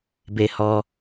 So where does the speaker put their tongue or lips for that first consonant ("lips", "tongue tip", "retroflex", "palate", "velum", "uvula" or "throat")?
lips